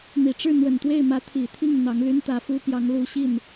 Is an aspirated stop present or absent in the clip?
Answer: present